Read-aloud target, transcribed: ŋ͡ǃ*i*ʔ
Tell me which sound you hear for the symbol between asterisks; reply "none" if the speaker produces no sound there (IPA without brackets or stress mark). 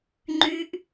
y